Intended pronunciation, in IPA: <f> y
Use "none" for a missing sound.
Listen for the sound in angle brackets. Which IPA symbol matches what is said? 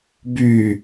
b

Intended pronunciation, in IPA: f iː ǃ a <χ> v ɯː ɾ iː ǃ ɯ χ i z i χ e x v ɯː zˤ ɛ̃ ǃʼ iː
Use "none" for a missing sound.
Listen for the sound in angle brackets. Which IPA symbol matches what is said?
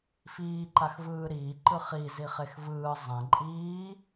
x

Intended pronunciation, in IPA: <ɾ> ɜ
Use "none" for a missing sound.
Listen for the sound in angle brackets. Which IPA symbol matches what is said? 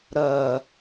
ɾ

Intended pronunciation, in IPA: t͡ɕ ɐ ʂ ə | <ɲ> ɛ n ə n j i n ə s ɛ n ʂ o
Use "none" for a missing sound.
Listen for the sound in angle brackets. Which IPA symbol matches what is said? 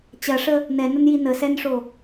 n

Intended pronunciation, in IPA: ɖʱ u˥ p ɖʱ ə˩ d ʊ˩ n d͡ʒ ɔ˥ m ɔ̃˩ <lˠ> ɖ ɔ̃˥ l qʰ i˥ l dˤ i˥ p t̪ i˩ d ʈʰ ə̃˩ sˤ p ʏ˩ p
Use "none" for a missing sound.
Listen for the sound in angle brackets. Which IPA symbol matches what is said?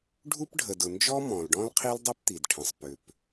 l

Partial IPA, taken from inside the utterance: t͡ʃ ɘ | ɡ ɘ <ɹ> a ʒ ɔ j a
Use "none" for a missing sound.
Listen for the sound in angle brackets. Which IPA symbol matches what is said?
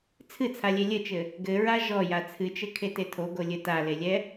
ɹ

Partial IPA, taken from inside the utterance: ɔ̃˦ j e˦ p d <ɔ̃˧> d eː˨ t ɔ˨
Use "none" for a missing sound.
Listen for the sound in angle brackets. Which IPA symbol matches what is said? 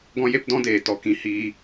ɔ̃˦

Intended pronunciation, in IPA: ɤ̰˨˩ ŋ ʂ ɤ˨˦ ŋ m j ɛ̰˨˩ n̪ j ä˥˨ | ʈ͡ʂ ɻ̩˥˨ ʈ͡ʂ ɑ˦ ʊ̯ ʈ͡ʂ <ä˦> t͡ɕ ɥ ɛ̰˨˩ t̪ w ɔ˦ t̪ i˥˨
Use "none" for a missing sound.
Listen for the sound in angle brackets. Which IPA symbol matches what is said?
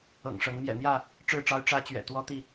ä˦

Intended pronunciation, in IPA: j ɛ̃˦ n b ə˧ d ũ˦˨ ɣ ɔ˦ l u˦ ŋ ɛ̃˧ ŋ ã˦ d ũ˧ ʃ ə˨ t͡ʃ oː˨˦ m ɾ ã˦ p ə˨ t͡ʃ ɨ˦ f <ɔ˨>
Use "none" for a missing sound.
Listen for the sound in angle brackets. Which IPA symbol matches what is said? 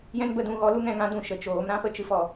ɔ˨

